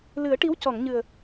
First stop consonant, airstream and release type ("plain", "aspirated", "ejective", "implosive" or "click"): plain